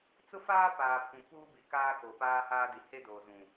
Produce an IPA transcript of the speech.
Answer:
t͡sʊ˦faː˦ paː˨pʰũ˨ puː˦bi˨kaː˦ koː˨paː˦haː˦di˨ he˦doː˨zũ˨

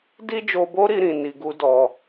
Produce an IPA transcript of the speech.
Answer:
di˦d͡ʒo˧bo˦ɾi˧ ɾĩ˨ni˨ ɡu˧dɔ˨

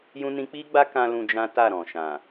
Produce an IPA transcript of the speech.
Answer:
jũ˦nĩ˦ k͡pi˦ɡ͡ba˦kã˧ lũ˧ d͡ʒã˦ta˦˨ɾɔ̃˨ ʃã˨

